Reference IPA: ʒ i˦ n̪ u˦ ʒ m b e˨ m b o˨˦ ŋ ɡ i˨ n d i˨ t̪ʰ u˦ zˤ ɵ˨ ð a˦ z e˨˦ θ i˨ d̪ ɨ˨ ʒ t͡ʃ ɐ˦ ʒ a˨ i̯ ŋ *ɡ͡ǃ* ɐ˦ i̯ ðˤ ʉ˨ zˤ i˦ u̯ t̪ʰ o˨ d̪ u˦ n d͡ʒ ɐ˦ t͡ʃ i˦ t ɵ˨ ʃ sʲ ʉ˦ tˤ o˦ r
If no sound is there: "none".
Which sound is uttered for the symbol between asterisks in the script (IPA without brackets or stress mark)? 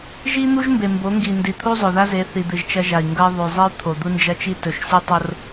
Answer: ɡ